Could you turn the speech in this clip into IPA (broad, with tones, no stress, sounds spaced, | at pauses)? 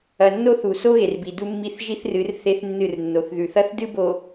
ɐ˨ nː o˦ θ u˨ s o˦ ɣ e˨ r b i˨ d u˦ mː i˦˨ θ ʒ i˦ θ r ɨ˨˦ r θ e˦ θ nː ɨ˦˨ r nː o˨ θ ð ʉ˨ θ ɐ˦ θ d ɨ˦ b o˨